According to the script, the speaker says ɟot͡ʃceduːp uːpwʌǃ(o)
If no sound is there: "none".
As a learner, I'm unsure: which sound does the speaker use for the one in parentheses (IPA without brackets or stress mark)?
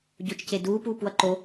o